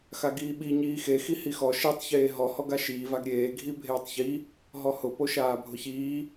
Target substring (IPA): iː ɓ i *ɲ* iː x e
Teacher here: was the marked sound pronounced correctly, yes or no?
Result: yes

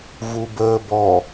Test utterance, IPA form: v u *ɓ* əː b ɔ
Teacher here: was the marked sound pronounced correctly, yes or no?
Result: no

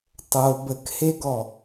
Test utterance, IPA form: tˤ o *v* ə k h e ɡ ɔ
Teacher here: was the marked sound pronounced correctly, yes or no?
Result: no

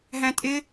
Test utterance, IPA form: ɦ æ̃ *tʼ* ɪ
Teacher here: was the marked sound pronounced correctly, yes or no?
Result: yes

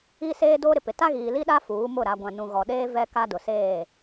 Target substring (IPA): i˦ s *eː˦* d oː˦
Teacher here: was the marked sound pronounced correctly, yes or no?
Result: yes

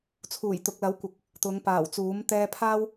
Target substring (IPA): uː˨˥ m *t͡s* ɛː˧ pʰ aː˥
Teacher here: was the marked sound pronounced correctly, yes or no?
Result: no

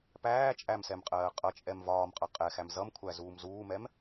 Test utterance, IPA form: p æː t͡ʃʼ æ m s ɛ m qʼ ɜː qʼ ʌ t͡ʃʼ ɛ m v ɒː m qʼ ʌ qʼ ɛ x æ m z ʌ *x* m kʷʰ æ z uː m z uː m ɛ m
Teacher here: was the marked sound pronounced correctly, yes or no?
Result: no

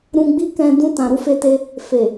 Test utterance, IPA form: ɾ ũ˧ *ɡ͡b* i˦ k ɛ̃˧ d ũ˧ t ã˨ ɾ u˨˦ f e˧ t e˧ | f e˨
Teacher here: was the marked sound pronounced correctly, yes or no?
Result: yes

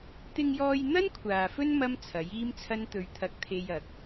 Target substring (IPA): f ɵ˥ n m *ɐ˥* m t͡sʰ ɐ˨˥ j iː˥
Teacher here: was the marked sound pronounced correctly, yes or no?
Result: yes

